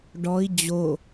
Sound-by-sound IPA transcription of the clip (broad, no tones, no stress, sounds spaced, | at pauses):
ɖ ɔ i̯ d͡ʑ o